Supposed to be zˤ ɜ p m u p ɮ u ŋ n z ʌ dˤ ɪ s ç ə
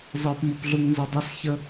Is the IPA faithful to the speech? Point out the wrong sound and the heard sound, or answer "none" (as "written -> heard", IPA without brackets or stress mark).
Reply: none